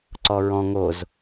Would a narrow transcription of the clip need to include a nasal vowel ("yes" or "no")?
yes